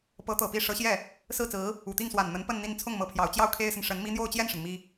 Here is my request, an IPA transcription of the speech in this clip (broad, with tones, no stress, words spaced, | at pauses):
pɤ˧˥t̪ɤ˨˩ pi˥˩ ʂɤ˧˥ɕjɛ˥˩ | sɹ̩˥˩t͡sɹ̩˧˥ | u˨˩t̪i˥˩ŋ swa˨˩n n̪ə˧˥npə˥˧n n̪i˥˧n t͡sʰʊ˥˩ŋmɤ˧˥pʰjɑ˨˩ʊ̯t͡ɕjɑ˥˩ʊ̯ kʰe˥ɪ̯sə˨n ʂə˧˥nmi˥ n̪jo˥˧ʊ̯t͡ɕjɛ˥˩nʂə˩n mi˥